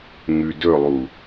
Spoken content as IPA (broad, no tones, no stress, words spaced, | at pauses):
ŋʉdɵlˠu